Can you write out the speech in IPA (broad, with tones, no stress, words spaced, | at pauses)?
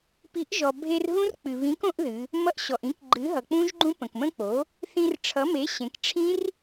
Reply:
pi˩˥ʔʒɔ˩bʱe˧rɦũ˦˥r k͡pɨ˩βĩ˩˥k õ˦˥ʔðɨ˩˧ | mʌ˧ʔɕɔ˩ʔĩ˩˥k ɡ͡ǃɨ˩˥ɦʌ˩k͡pũ˦˥ʒɡ͡ǃũ˦˥ pə̃˩kmə̃˦˥k͡po˩˥ | θĩ˧rʈ͡ʂʰʌ˩˥me˩˥ ɕẽ˩˧kʈ͡ʂʰĩ˦˥r